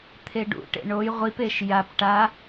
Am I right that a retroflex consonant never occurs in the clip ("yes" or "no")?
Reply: no